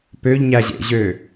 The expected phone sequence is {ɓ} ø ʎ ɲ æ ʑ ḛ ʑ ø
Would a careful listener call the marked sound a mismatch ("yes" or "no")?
yes